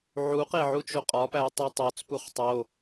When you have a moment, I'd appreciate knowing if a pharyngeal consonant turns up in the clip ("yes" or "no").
yes